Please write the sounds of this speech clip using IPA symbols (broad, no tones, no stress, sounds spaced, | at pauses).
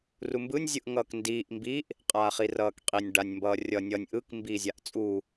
r u m b ɯ nʲ zʲ ɯ ʔ ŋ ʌː k n d iː ʔ m b i ʔ | qʼ aː χ i r ʌː k qʼ i nʲ ɖ a nʲ m b ʌː rʲ ʌ nʲ ʌ nʲ ʔ ɯ k m b iː zʲ a ʔ t͡sʼ u